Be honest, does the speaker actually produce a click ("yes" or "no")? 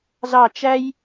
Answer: no